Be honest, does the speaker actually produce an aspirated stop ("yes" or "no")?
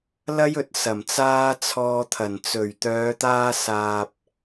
yes